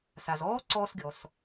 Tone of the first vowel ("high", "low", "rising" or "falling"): low